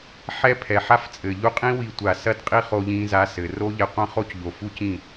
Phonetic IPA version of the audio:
ħ ɛ˦ pʰ ɛ˨ ħ a˦ f t͡sʼ ɘ˨ ʎ u˧ qʼ ĩ˦ w i˧ tʷ a˨ s ɐ˦ d qʼ i˦ χ o˧ ʎ ĩ˧ z a˧ s ɘ˨ r o˦ ʎ ɛ˧ qʷ ɐ̃˦ χ o˦ c ʎ o˨ f u˦ c ĩ˦˨

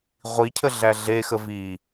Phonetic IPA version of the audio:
ʁʷ i cʰ ə ɮ æ ɮ e x ə v i

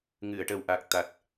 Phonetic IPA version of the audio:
ŋ ɨ˨˩˨ ə̯ ʈ ə˨˩ w ʔ a˨˩ k̚ t̪ a˨˩ t̚

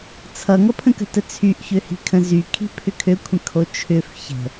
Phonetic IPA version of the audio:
t͡sʰ ʌ ŋ ʌ pʰ ə̃ k ə̤ t ə t͡sʰ y ʔ ç ø h i̤ kʰ ə̃ z y kʰ i̤ pʰ ʏ kʰ ø kʷʰ ə̃ kʰ o t͡ʃʰ ʏ f ç ə̤

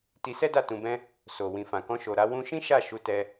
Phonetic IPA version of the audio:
t i˧ s ɛ˦ d a˦˨ t ũ˧ b ɛ̃˦ | s o˨ w ĩ˨ f ã˨ k ɔ̃˧ ʃ o˨ ɾ a˧ w ũ˧ ʃ ĩ˦ ʃ a˦˨ ʃ u˧ t ɛ˧

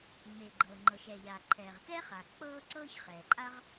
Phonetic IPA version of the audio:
ŋ͡m e˩ ɡ͡ǃ ɤː˩ ŋ͡ǃ ɤ˩ ʃ ɛː˩ ʎ aː˩ ǃʰ ɛː˩ ʁ t ɛː˥ χ a˩ k͡p ɤː˥ ǀ ɤː˥ ç χ ɛː˩ ǃʼ a˥ ʁ

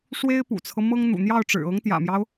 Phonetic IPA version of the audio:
ʂ w e˥ ɪ̯ p ṵ˨˩ t͡sʰ ɤ˦ m ɤ˥ ŋ n̪ ṵ˨˩ n̪ j ɑ˥˩ ʊ̯ ʈ͡ʂ ɻ̩˨˩ ɤ˧˥ ŋ t̪ j ä̰˨˩ m j ɑ˦ ʊ̯

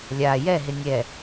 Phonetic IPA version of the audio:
lʲ a j ɛ ɦ ɪ nʲ ɛ

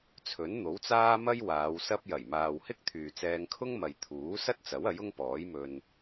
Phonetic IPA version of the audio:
t͡sʰ ɵ˨˥ n n̪ o˨˥ w t͡s aː˥ m ɐ˥ j w aː˨˧ w s ɐ˧ p̚ j ɐ˨˩ j m aː˨ w h ɪ˥ k̚ t̪ʰ yː˨ t͡s ɛː˧ ŋ kʰ ʊ˥ ŋ m ɐ˨ j t̪ʰ uː˨˥ s ɐ˥ t̚ t͡s ɐ˨˥ w ɐ˨˥ j ʊ˥ ŋ p ɔː˨˥ j m ɵ˧ n

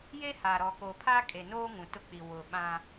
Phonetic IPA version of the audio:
j e˦ h a˨ ɾ ɔ˨ k o˨ pʰ a˦ kʼ e˨ n oː˦ ŋ ũ˨ t ʊ˦ k͡p i˨ w ʊ˨ ɓ ã˦

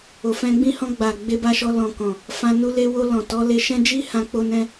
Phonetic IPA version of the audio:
o˨ f ɛ̃˧ ɡ͡b ĩ˦ h ɔ̃˧ ɡ͡b a˨ ɡ͡b e˧ b a˧ ʃ ɔ˧ l ɔ̃˨ k ɔ̃˨ | f ã˧ n u˧ l e˧ w o˧ l ɔ̃˨ t ɔ˨˦ l e˧ ʃ ɛ̃˦ d͡ʒ i˦ h ã˧ k͡p o˧ n ɛ̃˧

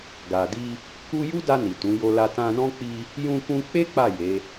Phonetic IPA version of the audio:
ɡ a˨ d i˧ | k u˦ j u˦ d a˧ n i˨ t ũ˨˦ j o˧ l a˧ t ã˧ n ɔ̃˦ k͡p i˧ | j ũ˧ k ũ˧ k͡p e˦ k͡p a˦˨ j e˨˦

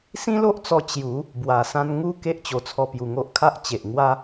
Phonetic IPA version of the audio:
s ĩ˦ l o˦ ʔ t͡s ɔ˧ t͡ɕ j u˨˦ | b w a˨˩ s ã˧ n ŋ u˧ k e˦ ʔ t͡ɕ o˨˩ t͡sʰ ɔ˧ p j u˨˩ ŋ o˦ ʔ kʰ a˦ ʔ t͡ɕ e˨ ʔ ŋ w a˦

